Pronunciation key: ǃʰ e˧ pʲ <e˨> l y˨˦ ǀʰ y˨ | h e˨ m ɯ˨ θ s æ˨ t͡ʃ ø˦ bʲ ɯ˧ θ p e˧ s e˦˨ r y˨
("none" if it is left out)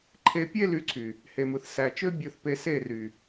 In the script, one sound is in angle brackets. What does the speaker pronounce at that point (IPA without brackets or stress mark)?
e˦